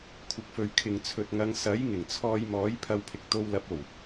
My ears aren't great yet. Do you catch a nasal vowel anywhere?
no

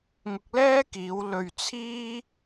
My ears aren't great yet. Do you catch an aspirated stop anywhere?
yes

